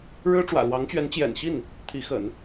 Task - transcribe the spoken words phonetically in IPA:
ɻ ɻ̩˥ ʈ͡ʂ w ä̰˨˩ l w ɑ˧˥ ŋ t͡ɕ ɥ ɛ˧˥ n t͡ɕ j ɛ̰˨˩ n ɕ i˥˩ n | t̪ʰ i˧˥ x ə̰˨˩˦ n

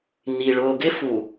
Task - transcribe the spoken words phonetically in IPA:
n i˨ ɭ ʊː˨ ɡ ɪ˦ f u˨

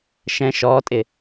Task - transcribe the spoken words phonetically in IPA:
ʃ ɛ̃ ʃ ɔː tʼ ɪ

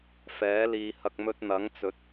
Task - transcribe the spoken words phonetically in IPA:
f ɛː˨˥ l iː˨ h ɐ˨ k̚ m ɵ˧ t̚ n̪ ɐ˨˥ ŋ t͡s ɵ˨˥ t̚

